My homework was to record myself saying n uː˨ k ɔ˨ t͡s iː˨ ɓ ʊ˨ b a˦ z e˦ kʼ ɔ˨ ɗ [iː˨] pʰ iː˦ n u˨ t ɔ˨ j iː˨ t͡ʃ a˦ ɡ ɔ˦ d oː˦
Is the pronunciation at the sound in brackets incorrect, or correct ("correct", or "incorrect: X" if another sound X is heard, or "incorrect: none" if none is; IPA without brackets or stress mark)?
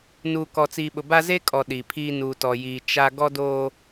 incorrect: i˨